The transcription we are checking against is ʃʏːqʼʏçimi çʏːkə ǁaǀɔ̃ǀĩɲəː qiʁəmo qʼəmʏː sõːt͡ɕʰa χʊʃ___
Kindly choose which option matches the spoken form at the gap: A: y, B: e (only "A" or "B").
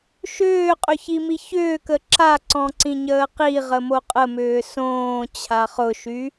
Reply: A